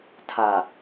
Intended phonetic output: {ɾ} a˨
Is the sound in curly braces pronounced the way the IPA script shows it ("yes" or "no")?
no